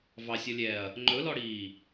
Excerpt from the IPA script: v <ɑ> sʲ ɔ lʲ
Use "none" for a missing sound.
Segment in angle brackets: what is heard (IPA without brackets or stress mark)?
ɑ